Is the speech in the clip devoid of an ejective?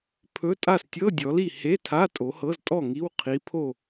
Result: no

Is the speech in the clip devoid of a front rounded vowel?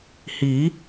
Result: yes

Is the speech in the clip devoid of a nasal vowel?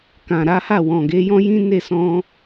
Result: no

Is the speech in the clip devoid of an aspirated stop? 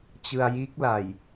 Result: yes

